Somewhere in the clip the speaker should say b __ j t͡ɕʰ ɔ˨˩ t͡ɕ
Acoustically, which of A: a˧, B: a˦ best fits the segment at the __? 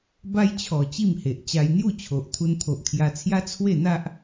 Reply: B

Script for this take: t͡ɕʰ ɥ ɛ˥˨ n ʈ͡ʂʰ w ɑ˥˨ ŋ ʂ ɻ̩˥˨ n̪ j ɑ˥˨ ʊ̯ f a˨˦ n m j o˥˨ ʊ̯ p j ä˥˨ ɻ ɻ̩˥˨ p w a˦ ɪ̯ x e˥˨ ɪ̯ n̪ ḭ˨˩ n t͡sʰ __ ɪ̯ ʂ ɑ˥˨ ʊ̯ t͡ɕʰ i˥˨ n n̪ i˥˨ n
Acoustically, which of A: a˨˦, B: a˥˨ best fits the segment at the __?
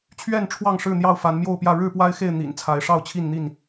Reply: A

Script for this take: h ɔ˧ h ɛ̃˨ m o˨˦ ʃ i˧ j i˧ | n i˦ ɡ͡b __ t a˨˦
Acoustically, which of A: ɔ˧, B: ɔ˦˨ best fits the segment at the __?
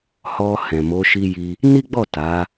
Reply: B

